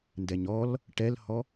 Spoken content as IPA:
n d ɛ ɲ ɔ l | ʈ ɛ l h ɔ

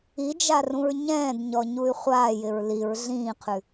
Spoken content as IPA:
i d͡ʒ a r ũ ɹ ɲ ɛ̃ː d ɲ ɔ ɲ u y̯ χʷ aː j ɪ ɹ l i ɹ ɮ ĩː qʰ ʉ

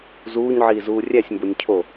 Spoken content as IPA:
z uː ɲ ʕ iː z uː rʲ æ sʲ m b o nʲ cʰ o

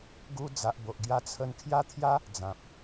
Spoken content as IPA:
ɡ u˧ d͡z a˨ ʔ b o˨ ʔ ɡ j a˧ t͡sʰ ə˧ n kʰ j a˦ t̪ʰ j a˦ | d͡z ã˨ p̚

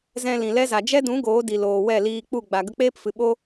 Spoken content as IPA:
z ɛ̃˧ l ĩ˨ l ɛ˦ z a˨ d͡ʒ ɛ˦ d ũ˨˦ ɡ oː˨˦ d i˨ l oː˨ w ɛ˦˨ l iː˧ k͡p u˦˨ ɡ͡b a˨ ɡ ə˧ k͡p eː˦ p f ɨ˨ ɓ o˦

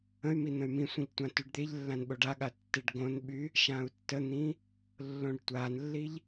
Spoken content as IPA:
ə̃ y̯ m i n̪ ə̃ y̯ m ĩ sʷ ĩ ʎ tʷ ã t y ɖ d̪ e ʎ lː ã n ɓ o ɖ a ɠ a tː e ɖ ɡ õ n ɓ y | ʃ ã u̯ tː ə n̪ ĩ | lː õ ɖ tʷ a n lː i ʎ

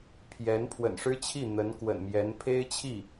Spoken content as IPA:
pʰ j ɛ˧˥ n pʰ w ə̰˨˩ n ʂ ɻ̩˥ t͡ɕʰ i˥˩ n̪ ə˧˥ n k w ə̰˨˩ n m j ɛ˧˥ n pʰ e˥ ɪ̯ t͡ɕʰ i˥˩

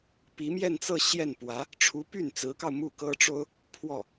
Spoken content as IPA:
p i˧˥ m j ɛ˥˧ n t͡s ɤ˥˧ ɕ j ɛ˥˩ n p w ä˧˥ | ʈ͡ʂʰ u˧˥ p y˥˩ n t͡s ɹ̩˧˥ k ɑ˧ ʊ̯ m u˥˩ k ɤ˥ ʈ͡ʂ o˥ ʊ̯ | pʰ w ɔ˥˩

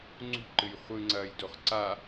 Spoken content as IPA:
ŋ͡ǀ ṳ ǃ ɨ j χʷ ɨ ŋ͡ǀ ɐː j d o χ ǀ a

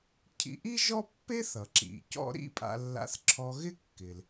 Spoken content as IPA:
cʰ ḭ˧ ʔ i˥ ʒ ɔ˥ pː e˥ θ ʌ˩ ǁ ḭ˩ c ɔ̰˥ ɾ ḭ˥ pʼ a̰˧ lː a̰˧ θ ǁʰ ɔ˧ ɣ ɪ˥ kː ɪ˩ l

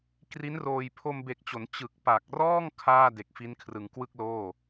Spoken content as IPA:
k r i˦˥ n r oː˧ j pʰ o˧ m b e˨˩ k̚ t͡ɕ o˩˦ n t͡ɕ ɯ˨˩ k̚ p a˨˩ k̚ r ɔː˥˩ ŋ kʰ aː˥˩ d e˨˩ k̚ f i˦˥ n kʰ r ɯ˨˩ ŋ k w ɯ˥˩ k̚ l oː˥˩

